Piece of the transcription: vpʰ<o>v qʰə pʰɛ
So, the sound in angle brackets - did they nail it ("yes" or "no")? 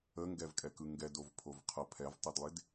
yes